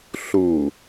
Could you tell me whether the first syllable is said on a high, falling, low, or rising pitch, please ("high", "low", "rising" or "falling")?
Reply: low